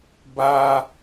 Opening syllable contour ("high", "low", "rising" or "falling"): high